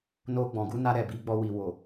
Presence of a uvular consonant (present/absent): absent